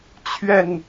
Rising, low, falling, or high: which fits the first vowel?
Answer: low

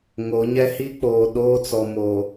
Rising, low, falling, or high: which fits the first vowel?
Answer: rising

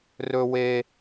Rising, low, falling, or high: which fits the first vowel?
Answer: high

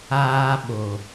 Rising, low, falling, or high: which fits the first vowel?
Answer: low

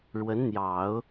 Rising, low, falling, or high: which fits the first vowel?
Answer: rising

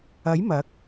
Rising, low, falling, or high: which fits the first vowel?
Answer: rising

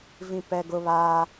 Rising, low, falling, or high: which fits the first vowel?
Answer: high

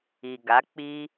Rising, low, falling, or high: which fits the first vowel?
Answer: low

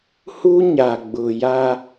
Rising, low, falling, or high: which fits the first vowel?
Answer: high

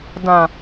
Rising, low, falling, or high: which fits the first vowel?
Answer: low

